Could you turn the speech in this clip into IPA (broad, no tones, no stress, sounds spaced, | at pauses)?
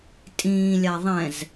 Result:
tʼ ĩː lʲ a ðˤ ɛ̃ z